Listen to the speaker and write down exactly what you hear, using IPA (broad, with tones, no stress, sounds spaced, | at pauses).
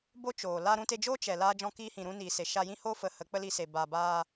b o˦ t͡ʃ oː˨ l a˧ ɾ ũ˧ t e˧ d͡ʒ oː˦ t͡ʃ ɛ˨ l aː˦ d͡ʒ ɔ̃˦ k iː˦ h ĩ˨ ɾ ũ˦ n iː˨ s e˨ ʃ a˧ j ĩ˦ h oː˦ f ə˨˦ h ə˨˦ k͡p ə˦ l i˧ s e˨ b aː˨ b aː˧